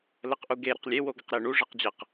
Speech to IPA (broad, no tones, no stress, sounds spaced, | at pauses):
l ə q ʔ u ɡ e ɾ ə q lʲ e w o ɡ ɐ q ɾ e ɳ u ʐ ɛ q d͡ʑ ɐ q